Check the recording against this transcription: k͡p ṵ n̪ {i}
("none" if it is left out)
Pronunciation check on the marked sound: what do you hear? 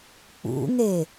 e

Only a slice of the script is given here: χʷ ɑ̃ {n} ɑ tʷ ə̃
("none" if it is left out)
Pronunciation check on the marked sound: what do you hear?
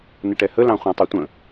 tˤ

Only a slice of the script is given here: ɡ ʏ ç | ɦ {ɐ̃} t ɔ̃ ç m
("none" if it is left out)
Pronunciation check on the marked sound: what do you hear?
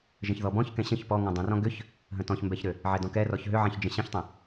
ə̃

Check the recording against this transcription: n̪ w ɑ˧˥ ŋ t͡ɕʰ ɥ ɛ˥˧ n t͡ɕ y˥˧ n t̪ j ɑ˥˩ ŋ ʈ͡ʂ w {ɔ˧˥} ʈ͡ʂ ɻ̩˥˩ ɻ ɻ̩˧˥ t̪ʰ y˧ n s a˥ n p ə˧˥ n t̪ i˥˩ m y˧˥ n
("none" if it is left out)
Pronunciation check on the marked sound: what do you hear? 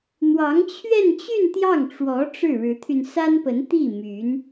ɔ˧˥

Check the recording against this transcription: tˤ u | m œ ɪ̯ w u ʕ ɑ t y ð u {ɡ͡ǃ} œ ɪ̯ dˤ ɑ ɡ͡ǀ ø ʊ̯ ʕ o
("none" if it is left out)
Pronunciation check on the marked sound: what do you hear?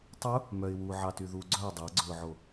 ɡ͡ǀ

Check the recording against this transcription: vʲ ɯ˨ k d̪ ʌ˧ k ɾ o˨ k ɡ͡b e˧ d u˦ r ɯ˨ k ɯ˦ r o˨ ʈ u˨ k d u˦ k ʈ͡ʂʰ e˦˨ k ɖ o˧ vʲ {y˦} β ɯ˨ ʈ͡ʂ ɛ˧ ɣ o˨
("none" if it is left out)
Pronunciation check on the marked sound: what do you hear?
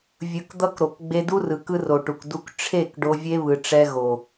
e˦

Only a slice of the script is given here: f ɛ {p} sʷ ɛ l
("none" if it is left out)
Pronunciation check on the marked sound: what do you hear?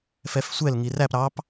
f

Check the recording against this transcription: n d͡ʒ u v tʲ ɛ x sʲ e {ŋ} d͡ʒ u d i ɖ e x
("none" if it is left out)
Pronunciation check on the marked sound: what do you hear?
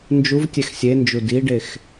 n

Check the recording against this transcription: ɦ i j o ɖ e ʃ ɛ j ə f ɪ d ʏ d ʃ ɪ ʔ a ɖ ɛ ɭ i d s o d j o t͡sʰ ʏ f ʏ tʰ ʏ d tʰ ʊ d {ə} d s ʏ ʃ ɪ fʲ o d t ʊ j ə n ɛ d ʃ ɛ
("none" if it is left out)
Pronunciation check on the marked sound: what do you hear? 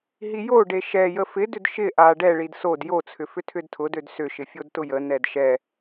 ø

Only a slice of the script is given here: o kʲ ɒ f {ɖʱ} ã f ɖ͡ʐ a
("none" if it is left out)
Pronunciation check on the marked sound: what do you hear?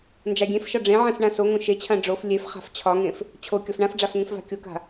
ɳ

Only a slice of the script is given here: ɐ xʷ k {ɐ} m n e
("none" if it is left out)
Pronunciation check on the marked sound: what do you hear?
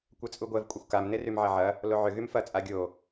a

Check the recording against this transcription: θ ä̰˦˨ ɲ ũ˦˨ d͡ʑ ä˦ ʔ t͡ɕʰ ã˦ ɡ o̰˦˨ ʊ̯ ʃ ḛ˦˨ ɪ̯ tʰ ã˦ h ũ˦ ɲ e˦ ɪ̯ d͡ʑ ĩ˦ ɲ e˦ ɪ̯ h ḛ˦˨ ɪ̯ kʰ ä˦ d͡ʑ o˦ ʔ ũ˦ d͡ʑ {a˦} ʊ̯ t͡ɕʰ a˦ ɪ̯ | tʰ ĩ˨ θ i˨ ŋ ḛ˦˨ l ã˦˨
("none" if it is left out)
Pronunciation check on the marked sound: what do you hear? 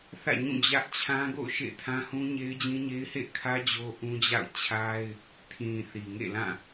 a̰˦˨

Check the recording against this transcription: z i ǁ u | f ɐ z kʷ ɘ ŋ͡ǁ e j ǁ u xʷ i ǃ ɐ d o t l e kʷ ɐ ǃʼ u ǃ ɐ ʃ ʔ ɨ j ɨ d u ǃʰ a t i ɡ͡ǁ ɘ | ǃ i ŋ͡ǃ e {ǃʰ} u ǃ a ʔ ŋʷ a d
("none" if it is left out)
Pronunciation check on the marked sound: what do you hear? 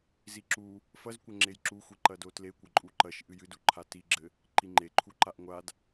ǃʰ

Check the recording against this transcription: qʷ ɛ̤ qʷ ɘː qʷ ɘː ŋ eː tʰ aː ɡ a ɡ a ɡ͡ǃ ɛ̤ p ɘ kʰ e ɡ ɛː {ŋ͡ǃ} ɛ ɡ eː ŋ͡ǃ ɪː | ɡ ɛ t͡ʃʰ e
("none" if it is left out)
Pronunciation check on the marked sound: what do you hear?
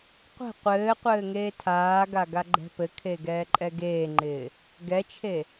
ǃʼ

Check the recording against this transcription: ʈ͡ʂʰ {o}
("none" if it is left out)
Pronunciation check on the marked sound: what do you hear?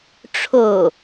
o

